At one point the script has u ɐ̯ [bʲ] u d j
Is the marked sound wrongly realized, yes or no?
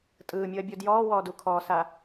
no